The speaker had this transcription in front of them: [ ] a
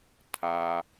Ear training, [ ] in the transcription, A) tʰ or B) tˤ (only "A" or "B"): A